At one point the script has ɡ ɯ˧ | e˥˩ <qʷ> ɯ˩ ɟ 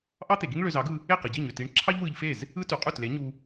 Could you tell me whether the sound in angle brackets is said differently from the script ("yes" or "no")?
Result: yes